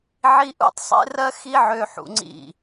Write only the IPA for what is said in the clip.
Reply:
ʕ i˦ ʔ ṵ˦ tˤ sˤ ḛ˦ r ɜ˦ x i˦ ʕ ø˧ ħ ṵ˧ ŋ͡ǀ ḭ˦˨

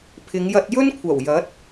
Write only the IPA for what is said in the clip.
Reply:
pʰ ɪ˨˧ ŋ j ɐ˧ t̚ j ɵ˥ n kʷʰ ɐ˨˩ w j ɐ˨˥ t̚

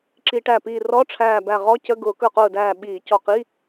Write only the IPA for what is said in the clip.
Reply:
ǁ i˧˩˧ ʈ æ˧˩ p iː˧˩ r ɔ˧˥˧ ʈ͡ʂʰ æː˧˩ b æ˧˩ ʁ ɔ˧˥˧ c ə˧˥˧ ɡ ʊː˧˩˧ k ə˞˧˩ q ʊː˧˩ d æː˧˩ ɓ iː˧˩˧ c ɔ˧˩ q i˧˥˧

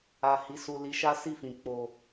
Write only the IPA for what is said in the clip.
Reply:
a˨ h i˨˦ s u˧ l i˧ ʃ a˦ s i˦˨ f ĩ˨ k͡p o˨

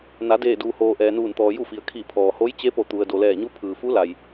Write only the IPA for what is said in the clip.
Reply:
n a˩˧ d eː˧˩ d uː˩ h oː˩ ʔ ɛː˩ n uː˧˩ n t̪ ɔː˩ j u˥˨ f i˩ ə̯ kʰ i˧˩ pʰ ɔː˩ h o˧˥ j t͡ɕ e˧˥ p o˧˩ t̪ u˩ ə̯ d o˩ l ɛː˧˩ ɲ u˧˥ pʰ ɯː˩ f u˧˥ l a˩ j

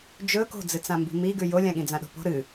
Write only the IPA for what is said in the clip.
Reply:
d͡ʒ ɵ k o̤ d͡z ɨ t͡s ã m b i̤ m i ɡ ʉ j o lʲ ã ɠ ĩ d͡z ã ɗ o̤ p o̤ ɾ ɨ

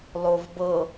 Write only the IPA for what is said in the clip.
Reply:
lˠ o v b ɤ

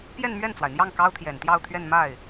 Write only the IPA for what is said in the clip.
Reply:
p j ɛ˥˧ n m ɥ ɛ˥˩ n t͡s w a˩ ɪ̯ n̪ j ɑ˥˩ ŋ k ɑ˥ ʊ̯ t̪ʰ j ɛ˨˩ n t̪ j ɑ˥˧ ʊ̯ t̪ʰ ɥ ɛ˥˧ n m a˥˩ ɪ̯

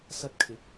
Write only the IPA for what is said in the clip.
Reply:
s ɐ˧ t̚ kʰ ɪ˨˥ k̚

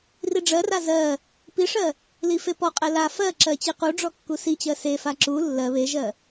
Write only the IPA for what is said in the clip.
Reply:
r i ɖ͡ʐ ɜ r a z ɜ | p i ʂ ɜ | l i f e p ɔ qʼ ɛ l a f ɜ ǁ ɜ t͡ɕ i q u ɖ͡ʐ ɔ kː u s i t͡ɕ ɜ s e f a ǁ u lː ɜ β e ʒ ɜ

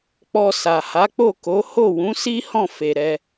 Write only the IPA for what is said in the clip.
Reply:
k͡p ɔ˧ s a˨ h a˨˦ k͡p o˦˨ k o˨˦ h o˦˨ w ũ˨˦ s i˦ h ɔ̃˦˨ f e˨ ɾ ɛ˧

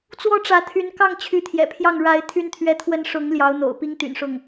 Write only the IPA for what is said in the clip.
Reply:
t͡s w ɔ˥ ʈ͡ʂ ä˧˥ t̪ʰ y˧˥ n k ɑ˥˩ ŋ t͡ɕʰ y˧˥ t̪ʰ j ɛ̰˨˩ pʰ j ɑ˥˩ ŋ ɻ a˧˥ ɪ̯ t̪ʰ y˥ n t̪ʰ ɥ ɛ˥ t̪ʰ w ə˥ n ʂ ʊ˧˥ ŋ l j ɑ˧˥ ʊ̯ n̪ o̰˨˩ ʊ̯ p i˥ ŋ t̪ y̰˨˩ n ʂ ʊ˥˩ ŋ

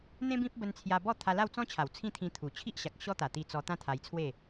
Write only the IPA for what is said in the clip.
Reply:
n̪ ẽ˦ b ĩ˦ p̚ b ə˧ n t͡sʰ j a˧ b ɔ˥˧ t̪ʰ a˧ l a˥˧ w t͡s ɔ̃˦ t͡ɕʰ a˨˩ w t͡sʰ ĩ˥˧ t̪ʰ ĩ˧ t̪ʰ u˨˩ t͡ɕʰ i˦ ʔ ɕ a˨ k̚ ɕ ɔ˦ t̪ a˨˩ t̪ i˧ t͡s ɔ˧ t̪ ã˦ t̪ʰ a˧ j t͡sʰ w e˥˧

